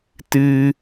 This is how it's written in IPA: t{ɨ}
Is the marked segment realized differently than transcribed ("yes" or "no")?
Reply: no